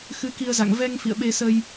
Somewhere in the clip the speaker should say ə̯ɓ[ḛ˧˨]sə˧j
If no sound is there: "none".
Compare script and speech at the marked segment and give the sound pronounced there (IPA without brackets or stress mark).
e˧